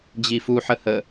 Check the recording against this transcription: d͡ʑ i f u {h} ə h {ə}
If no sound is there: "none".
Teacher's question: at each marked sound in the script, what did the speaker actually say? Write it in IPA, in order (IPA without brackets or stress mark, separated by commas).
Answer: ħ, ə